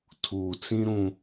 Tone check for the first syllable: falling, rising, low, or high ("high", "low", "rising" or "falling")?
low